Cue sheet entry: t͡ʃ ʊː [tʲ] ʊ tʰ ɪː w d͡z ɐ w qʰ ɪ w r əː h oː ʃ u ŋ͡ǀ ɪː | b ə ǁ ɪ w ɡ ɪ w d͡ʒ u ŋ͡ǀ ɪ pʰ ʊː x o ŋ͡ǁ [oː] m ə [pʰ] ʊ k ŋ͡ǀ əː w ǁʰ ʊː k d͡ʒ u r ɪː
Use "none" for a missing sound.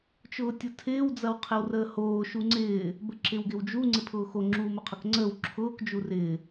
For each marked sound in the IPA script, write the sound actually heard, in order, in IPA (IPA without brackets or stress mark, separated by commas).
tʲ, uː, qʰ